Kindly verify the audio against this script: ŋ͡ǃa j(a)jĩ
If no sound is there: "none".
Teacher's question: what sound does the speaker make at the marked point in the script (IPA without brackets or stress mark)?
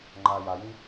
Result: a